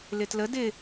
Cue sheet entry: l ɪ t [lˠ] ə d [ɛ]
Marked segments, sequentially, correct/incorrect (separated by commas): incorrect, incorrect